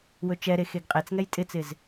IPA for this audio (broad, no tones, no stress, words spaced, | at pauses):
wɵt͡ʃɛɾe xeɡqʼet͡sŋɛj tʼɪt͡sɪz